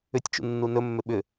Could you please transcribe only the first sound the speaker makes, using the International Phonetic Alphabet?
ʏ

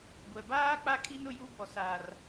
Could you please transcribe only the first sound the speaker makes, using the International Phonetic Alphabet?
ɡʷ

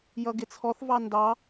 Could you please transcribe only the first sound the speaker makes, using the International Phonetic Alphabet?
j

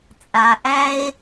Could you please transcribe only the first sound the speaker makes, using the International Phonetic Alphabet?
t͡sʼ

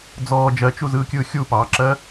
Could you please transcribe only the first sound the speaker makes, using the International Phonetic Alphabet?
d͡z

